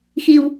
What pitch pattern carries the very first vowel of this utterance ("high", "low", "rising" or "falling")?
low